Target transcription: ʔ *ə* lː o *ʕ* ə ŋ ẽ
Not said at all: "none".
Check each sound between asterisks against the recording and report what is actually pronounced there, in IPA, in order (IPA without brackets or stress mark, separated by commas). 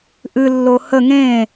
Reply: ɨ, h